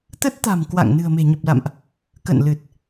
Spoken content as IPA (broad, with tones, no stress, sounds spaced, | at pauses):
t̪ ə˦˥ t̚ t̪ a̤˨˩ m k w a̰˧˨ ŋ n ɨ̤˨˩ ə̯ m e̤˨˩ ɲ ə˨˩ p̚ l a̰˧˨ m ʔ | k ə̰˧˨ n l ɨ˨˩ t̚